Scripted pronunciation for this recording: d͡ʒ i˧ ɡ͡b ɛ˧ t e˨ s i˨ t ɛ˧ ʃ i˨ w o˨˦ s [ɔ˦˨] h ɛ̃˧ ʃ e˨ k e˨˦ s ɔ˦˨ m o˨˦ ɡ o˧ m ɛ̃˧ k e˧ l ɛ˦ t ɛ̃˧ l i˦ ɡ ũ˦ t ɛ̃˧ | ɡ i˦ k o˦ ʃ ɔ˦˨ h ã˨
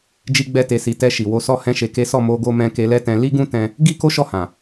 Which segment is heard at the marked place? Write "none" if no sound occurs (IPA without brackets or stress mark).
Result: ɔ˦˨